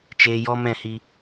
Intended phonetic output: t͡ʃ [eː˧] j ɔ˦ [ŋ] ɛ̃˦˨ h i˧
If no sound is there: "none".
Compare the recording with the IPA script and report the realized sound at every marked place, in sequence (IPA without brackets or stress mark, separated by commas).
eː˧, m